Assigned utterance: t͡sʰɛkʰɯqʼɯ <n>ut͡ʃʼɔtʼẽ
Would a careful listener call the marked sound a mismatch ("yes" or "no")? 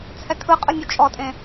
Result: yes